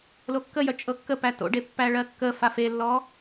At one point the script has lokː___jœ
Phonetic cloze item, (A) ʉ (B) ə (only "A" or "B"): B